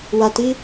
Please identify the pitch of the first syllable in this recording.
low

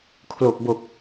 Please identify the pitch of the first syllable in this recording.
low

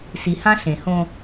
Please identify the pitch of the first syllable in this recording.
low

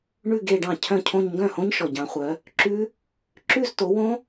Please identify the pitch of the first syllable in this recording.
falling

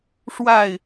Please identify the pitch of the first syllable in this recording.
falling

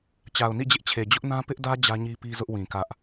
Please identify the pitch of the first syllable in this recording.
low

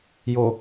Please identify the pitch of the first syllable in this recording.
low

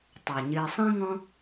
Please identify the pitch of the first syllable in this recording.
low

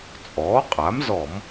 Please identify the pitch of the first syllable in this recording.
rising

